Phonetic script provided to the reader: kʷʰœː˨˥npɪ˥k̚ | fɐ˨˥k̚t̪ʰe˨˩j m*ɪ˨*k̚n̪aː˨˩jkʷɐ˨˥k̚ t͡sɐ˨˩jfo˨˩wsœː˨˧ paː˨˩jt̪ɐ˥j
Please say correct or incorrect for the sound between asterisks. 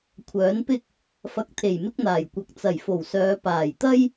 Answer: incorrect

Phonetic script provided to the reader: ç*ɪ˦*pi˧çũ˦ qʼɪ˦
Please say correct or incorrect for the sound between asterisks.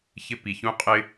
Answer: correct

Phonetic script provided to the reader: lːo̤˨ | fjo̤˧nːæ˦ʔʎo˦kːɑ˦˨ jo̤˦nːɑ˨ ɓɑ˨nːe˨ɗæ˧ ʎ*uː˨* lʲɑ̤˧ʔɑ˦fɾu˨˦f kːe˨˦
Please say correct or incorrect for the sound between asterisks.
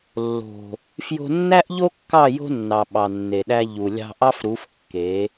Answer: incorrect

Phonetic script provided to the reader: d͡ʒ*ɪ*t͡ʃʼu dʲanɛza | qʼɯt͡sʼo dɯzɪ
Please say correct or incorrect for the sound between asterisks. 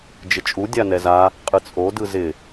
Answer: correct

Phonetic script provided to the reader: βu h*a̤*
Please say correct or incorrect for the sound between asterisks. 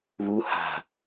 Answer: correct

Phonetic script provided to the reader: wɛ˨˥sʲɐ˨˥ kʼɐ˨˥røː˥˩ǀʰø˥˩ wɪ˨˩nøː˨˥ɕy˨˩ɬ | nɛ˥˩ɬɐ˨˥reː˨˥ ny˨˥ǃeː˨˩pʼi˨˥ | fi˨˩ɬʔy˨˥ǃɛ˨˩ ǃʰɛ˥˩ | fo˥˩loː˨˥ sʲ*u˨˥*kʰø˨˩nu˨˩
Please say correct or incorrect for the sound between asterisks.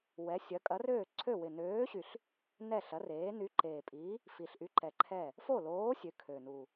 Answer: incorrect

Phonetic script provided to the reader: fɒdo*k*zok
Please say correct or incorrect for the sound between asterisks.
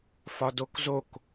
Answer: correct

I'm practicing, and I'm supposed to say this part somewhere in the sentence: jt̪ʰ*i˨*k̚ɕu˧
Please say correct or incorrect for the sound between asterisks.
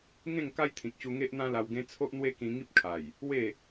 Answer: incorrect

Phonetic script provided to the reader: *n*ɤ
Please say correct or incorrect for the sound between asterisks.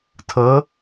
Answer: incorrect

